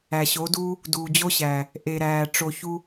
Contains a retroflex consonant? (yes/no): yes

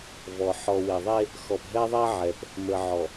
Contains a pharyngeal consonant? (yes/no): yes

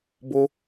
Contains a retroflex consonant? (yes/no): no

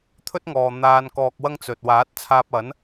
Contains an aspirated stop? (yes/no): yes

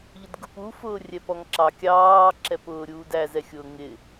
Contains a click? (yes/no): yes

